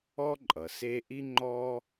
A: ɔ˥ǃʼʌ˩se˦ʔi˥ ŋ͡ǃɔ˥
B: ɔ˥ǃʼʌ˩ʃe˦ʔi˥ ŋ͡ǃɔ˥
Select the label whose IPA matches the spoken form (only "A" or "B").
A